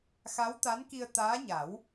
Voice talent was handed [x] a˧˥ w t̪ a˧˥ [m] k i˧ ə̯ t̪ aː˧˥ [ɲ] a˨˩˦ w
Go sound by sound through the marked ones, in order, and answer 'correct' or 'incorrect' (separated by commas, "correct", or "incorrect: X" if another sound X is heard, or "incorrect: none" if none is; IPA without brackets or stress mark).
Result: correct, incorrect: n, correct